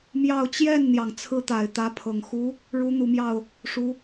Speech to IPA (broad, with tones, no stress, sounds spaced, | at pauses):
m j ɑ˥˧ ʊ̯ t͡ɕ j ɛ˥˩ n n̪ j ɑ˩ ŋ t͡sʰ ɹ̩˥ t̪ a˨˩ ɪ̯ t̪ ä˧˥ pʰ ɤ˨˩ ŋ x u˧˥ | ɻ u˧˥ n̪ u˨˩ m j ɑ˥˩ ʊ̯ | ʂ u˧˥